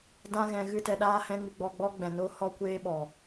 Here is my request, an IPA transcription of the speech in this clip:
d ã˦ ɣ ɛ̃˧ ɣ ɨ˦ t ɛ˧ ɗ aː˦ h ɛ̃˦ ŋ ɨ˧ ɡ͡b ɔ˧ ɡ͡b ɔ˦ ɡ͡b ɛ̃˨ n oː˦ h ɔ˧ kʷ eː˧ ɓ ɔ˨

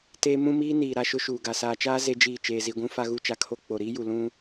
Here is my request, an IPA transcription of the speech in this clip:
t eː˦ m ũ˦ m iː˦ n iː˨ ɾ a˦ ʃ ʊ˦ ʃ uː˨ ɡ a˨ s aː˨ t͡ʃ aː˦ z e˦ d͡ʒ iː˦˨ t͡ʃ eː˨ z i˨ ɡʷ ũ˦ f a˦ ɣ u˦˨ t͡ʃ a˦ kʰ o˦ k͡p o˨ ɾ iː˦ j u˨ l ũ˦

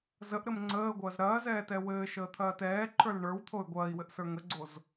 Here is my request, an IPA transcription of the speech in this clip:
z ə ʔ ɾ ɘ m ŋ͡ǀ əː ɡʷ ɐː z ɾ ɐː z ɛː t ɛ w ɘː ʃ əː t̪ʰ ɐː t ɛː ǃʰ ə˞ l ɳ ə˞ w t̪ʰ o y̯ ɡʷ ɐː i̯ w ɘ ʔ s ə˞ ŋ ə ɡ͡ǀ o z

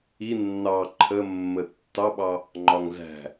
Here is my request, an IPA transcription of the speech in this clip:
i nː ɑ ǃʰ ə mː ə tː ɑ ɓ ɑ | ŋ͡ǃ ɒ ŋ z æ̤

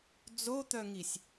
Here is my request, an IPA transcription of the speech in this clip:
d͡z o t̪ œ ŋ i sʲ

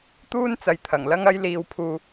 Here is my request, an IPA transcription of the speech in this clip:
t̪ uː˥ n t͡s ɐ˨˧ j t̪ʰ ɐ˨˩ ŋ l ɐ˥ ŋ ɐ˥ j l iː˧ w pʰ uː˧

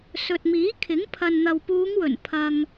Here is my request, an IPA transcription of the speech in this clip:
s ɵ˨ t̚ m iː˨˥ kʰ ɪ˨˥ ŋ pʰ ɐ˨ n n̪ ɐ˨ w p uː˨˧ ŋ w ɵ˨˩ n pʰ ɐ˧ ŋ

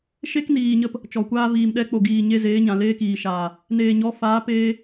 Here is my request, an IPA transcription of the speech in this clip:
ʃ e˦ k n iː˨ ɲ ə˧ p | t͡ʃ ɔ˨ kʷ aː˦ v iː˨ m ɗ ɛ˧ k͡p o˨ ɡ iː˨ ɲ e˦ z eː˨˦ ɲ ã˨ l eː˦ k iː˨ ʃ aː˨ | n eː˨ ɲ ɔ˨˦ f aː˨˦ p eː˦

